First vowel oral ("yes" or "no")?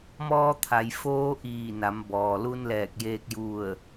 yes